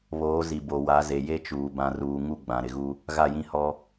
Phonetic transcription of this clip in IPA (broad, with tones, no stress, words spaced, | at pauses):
βoː˨˦zi˨bo˨ wa˨˦ze˨ je˦t͡ʃuː˨ bã˨ruː˨ ŋu˦ɡ͡bã˨ ɾɪ˨ɣu˦ | ɣa˦˨jĩ˦hɔ˦